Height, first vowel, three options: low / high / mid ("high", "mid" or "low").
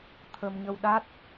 mid